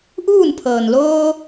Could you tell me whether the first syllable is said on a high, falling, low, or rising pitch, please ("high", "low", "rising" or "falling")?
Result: falling